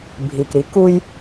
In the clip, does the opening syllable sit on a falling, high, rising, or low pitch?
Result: low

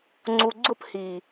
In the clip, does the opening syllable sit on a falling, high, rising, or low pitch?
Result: low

